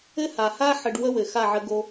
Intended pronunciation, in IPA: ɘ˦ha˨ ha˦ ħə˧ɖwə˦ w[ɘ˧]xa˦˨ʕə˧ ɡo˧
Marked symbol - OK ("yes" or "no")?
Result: no